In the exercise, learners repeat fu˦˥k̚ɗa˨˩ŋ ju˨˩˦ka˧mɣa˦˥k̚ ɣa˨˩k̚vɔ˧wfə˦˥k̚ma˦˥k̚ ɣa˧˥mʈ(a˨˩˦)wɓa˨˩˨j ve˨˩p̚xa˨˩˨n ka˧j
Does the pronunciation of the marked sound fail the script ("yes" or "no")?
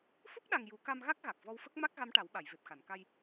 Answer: no